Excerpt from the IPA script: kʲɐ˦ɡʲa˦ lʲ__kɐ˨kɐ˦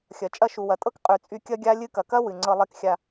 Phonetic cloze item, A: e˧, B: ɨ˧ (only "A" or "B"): B